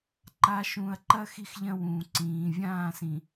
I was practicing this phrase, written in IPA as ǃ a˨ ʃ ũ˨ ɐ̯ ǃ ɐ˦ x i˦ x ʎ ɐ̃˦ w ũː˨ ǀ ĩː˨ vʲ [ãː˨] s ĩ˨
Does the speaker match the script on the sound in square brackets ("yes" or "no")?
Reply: no